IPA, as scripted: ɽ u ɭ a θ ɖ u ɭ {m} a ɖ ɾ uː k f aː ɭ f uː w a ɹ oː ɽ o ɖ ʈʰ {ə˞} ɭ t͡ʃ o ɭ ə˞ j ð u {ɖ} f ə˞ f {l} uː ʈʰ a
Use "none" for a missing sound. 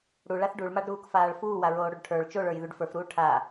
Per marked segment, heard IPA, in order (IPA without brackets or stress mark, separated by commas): m, ə˞, ɖ, ɾ